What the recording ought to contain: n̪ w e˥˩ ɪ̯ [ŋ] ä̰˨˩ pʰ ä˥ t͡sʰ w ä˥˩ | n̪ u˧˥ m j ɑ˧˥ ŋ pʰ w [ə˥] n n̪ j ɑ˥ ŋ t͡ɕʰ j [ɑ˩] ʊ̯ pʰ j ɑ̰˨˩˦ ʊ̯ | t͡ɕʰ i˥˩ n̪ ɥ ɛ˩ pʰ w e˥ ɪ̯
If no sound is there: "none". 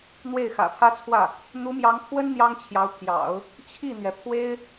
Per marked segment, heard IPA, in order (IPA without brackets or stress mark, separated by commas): x, ə˥, ɑ˧˥